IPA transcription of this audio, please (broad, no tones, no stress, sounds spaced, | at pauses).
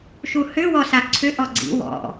ʃ u h ʏ w ɔ s a ǀʰ ʏ ʔ ɔ ɡ͡ǀ ḭ w ɔ̰